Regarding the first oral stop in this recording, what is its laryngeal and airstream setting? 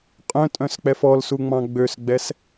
ejective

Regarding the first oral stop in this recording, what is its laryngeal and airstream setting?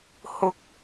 plain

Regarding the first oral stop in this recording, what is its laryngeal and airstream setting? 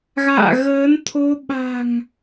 aspirated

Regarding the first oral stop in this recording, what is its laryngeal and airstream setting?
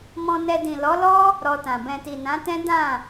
plain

